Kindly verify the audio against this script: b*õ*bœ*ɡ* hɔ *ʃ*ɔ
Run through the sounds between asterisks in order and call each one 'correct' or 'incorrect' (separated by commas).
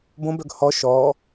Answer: correct, correct, correct